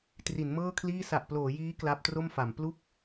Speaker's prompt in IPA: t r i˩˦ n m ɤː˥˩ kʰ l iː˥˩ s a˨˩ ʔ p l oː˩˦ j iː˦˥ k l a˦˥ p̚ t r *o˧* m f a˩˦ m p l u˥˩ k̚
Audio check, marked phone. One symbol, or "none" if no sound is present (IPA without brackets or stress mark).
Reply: o˥˩